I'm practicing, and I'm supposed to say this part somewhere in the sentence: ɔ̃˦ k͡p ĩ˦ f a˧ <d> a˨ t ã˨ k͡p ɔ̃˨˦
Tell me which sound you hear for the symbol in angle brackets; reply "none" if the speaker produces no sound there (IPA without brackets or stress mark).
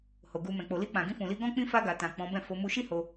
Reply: ɡ